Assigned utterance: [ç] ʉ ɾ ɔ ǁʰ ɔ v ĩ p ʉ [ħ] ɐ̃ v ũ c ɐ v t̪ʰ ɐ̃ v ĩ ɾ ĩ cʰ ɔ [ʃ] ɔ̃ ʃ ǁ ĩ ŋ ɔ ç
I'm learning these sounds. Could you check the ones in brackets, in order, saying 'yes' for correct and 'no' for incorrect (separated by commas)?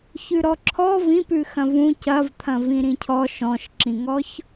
yes, no, yes